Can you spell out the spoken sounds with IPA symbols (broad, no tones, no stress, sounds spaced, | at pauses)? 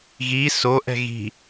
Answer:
ɣ i s o ʔ ɛ̤ ɣ i̤